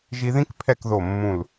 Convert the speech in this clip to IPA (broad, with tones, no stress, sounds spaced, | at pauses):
ʒ i˧ ð ĩ˥ k pʰ ɛ˥˧ k ð o˧˩ mː ũ˧˩ l